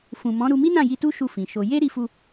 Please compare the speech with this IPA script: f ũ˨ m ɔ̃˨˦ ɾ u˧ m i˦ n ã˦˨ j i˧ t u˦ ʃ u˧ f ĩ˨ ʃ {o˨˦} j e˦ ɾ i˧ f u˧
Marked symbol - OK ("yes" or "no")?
no